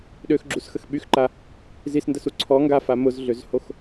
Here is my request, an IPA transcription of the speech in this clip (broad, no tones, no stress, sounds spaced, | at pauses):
ɗ ø x ɡ͡ǁ u s x ə x ɓ y x ǃ a | z i s n d ə s u ǀʰ ɔ ŋ ɡ a f a m ʊ z ɮ ø z h o x